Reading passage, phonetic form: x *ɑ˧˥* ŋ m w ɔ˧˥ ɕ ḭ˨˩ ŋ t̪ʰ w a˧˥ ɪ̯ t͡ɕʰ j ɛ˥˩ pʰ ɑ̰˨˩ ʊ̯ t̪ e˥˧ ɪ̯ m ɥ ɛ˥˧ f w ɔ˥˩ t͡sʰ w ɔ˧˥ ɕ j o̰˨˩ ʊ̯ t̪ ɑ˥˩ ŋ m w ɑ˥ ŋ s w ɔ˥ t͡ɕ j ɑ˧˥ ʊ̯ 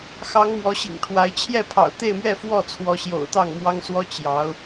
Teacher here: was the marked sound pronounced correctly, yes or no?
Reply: yes